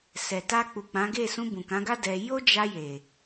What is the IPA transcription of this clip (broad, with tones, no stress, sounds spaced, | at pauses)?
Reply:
s ɛ˨ t a˧ k͡p u˨ k͡p ã˨˦ ɡ e˦˨ s ũ˧ b ũ˨ k ã˨˦ ɡ a˦ d ɛ˧ j o˦ d͡ʒ a˧ j e˨